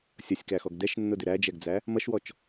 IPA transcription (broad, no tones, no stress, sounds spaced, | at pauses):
sʲ ʌ sʲ k æ x ɔ ɡ d ɛ ʃ nː ʊ d ɪ ɾ æ d͡ʒ ɛ ɡ d͡z æ | m ʌ ʃ w ɔ t͡ʃ